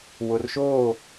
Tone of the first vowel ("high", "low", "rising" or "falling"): low